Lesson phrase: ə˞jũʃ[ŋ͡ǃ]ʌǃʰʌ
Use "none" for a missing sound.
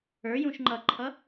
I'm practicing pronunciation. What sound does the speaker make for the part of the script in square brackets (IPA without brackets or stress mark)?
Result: ŋ͡ǃ